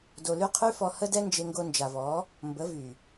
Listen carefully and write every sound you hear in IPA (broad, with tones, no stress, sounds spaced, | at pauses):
d o˧ l y˦ qʰ y˦ f ɔ˧ h ə˦ d ɛ˦ n d͡ʒ e˧ ŋ ɡ o˧ n d͡ʒ a˨ v ɔ˨˦ | m b ə˨˦ v y˨